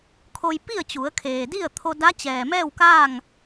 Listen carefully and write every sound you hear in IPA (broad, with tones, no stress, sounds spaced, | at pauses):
kʰ o˧ j p i˥˨ ə̯ t͡ɕ u˩˧ ə̯ kʰ eː˩ d i˥˨ ə̯ t̪ʰ o˧ d a˧˥ t͡ɕ ɛː˩ m ɛː˥˨ w k aː˥˨ ŋ